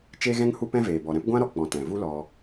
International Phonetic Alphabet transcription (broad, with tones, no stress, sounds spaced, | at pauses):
t͡ʃ e˦ ɣ ɛ̃˦ ŋ h u˦ p ɛ̃˦ v eː˨ b ɔ˨ ɾ ɛ̃˦ p ɡʷ ã˦ ɾ ɔ˧ k͡p ɔ̃˨ t ɛ̃˨ v u˦ l ɔ˧